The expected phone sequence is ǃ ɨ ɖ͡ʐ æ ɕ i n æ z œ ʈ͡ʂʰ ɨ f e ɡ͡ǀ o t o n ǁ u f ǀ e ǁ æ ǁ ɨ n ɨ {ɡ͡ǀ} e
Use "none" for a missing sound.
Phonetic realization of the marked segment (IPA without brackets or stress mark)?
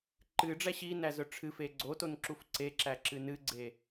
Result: ɡ͡ǀ